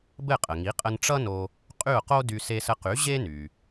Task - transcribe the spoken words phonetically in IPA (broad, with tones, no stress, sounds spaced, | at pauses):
b ɘ˥˩ qʼ ə˩ ŋ i˩˥ qʼ ə˧ n ʈ͡ʂ ʌ˥ n o˧ | qʼ y˥˩ ʊ̯ q o˥ d y˧ s e˧ s ə˧ q y˩˥ ʑ e˥ n y˩